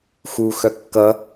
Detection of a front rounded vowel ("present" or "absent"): present